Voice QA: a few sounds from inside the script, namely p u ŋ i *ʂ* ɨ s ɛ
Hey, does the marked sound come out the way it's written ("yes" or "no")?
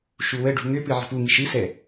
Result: no